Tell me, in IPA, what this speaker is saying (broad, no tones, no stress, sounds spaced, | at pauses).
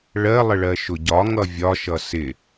ɭ ɜ lˠ ə ɭ ɜ ʃ ʊ ɟ ɒ ŋ ʌ vʲ ɒ ʃ ʌ s ɪ